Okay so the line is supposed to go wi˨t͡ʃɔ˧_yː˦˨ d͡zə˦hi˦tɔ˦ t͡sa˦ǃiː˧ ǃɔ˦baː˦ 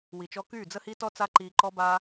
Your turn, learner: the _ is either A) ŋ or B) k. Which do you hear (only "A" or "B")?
B